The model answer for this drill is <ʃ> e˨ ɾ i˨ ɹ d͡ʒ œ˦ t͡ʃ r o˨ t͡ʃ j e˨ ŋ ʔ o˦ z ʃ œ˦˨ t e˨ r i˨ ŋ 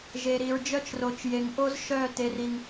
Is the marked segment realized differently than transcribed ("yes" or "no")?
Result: yes